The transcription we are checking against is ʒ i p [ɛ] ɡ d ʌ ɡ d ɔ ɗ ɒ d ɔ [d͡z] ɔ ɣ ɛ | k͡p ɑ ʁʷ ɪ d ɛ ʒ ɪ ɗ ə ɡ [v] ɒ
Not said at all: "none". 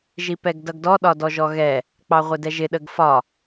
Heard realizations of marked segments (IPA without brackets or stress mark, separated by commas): ɛ, ʒ, f